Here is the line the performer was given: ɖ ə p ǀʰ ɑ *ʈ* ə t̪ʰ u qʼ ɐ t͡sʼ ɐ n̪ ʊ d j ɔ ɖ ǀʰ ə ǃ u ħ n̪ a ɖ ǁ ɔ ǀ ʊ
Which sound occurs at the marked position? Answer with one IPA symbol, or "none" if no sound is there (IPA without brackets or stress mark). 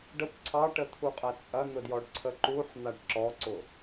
ʈ